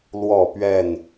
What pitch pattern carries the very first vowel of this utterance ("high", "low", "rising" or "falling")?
falling